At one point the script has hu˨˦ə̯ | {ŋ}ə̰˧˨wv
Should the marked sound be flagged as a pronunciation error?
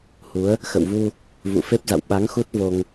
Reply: yes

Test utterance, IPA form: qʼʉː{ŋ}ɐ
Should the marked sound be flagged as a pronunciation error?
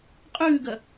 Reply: yes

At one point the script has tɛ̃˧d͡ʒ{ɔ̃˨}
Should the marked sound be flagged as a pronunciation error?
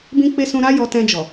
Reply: yes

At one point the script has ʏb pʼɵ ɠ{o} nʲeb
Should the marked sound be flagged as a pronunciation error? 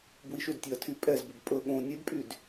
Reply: yes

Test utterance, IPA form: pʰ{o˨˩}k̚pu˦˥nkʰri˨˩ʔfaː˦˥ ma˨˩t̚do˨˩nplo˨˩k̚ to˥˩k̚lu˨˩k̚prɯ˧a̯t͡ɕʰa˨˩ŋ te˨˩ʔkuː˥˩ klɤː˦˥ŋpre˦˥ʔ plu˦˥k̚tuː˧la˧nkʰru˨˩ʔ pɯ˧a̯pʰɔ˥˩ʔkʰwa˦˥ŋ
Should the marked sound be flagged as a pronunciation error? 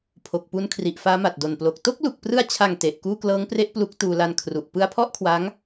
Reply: no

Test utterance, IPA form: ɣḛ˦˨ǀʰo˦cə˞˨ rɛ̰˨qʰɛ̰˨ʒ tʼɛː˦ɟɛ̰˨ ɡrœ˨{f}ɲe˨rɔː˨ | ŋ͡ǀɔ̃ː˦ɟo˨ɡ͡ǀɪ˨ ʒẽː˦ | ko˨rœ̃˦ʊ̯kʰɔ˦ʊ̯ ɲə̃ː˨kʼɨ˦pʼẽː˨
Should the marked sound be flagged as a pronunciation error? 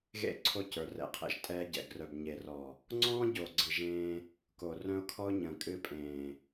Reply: yes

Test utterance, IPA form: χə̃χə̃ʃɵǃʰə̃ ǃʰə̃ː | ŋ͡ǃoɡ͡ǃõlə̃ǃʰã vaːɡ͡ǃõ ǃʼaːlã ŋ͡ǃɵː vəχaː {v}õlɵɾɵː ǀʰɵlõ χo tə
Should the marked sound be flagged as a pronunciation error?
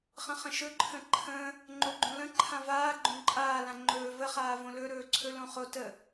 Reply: no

